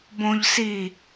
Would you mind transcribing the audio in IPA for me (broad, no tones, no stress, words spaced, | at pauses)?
bõʎsi